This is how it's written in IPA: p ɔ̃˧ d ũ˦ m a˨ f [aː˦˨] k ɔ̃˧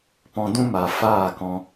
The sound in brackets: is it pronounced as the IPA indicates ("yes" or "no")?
yes